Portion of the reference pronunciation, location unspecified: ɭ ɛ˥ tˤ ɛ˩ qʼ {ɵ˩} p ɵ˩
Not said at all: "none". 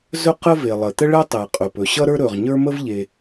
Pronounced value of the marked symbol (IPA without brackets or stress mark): ɵ˩